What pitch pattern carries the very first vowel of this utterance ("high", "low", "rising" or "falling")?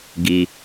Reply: low